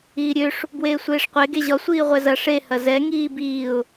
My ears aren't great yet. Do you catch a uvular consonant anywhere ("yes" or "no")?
yes